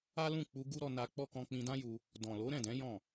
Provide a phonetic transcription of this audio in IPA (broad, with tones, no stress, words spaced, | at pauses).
a˦lũ˦˨k͡pu˧ ɡu˦ɾɔ˧ na˧ k͡pɔ˦ kɔ̃˧k͡pĩ˧dã˦ju˧ | dɔ̃˨lo˨˦ɾɛ̃˦˨dɛ̃˨˦ jɔ̃˦˨